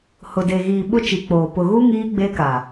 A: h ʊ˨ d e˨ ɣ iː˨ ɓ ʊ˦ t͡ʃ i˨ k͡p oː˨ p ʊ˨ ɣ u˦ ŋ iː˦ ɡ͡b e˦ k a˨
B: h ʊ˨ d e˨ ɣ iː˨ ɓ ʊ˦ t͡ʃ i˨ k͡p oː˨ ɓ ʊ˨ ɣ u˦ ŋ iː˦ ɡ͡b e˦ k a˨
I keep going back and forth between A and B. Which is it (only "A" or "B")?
A